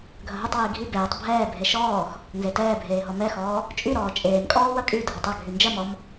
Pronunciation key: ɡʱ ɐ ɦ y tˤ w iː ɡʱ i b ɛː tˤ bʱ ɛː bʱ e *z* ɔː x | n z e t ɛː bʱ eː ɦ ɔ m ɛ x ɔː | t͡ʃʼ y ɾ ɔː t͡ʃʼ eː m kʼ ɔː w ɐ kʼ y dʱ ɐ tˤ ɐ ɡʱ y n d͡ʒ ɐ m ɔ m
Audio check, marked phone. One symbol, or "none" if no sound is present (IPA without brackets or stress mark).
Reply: ʃ